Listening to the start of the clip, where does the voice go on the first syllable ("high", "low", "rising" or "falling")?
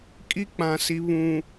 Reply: high